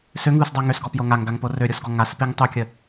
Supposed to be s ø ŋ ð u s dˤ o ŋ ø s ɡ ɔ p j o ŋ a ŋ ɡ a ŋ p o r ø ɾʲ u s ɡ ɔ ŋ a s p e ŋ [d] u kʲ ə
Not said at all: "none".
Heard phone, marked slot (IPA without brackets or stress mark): tˤ